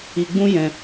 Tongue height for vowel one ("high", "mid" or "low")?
high